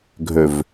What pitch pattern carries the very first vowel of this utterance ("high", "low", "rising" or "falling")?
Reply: low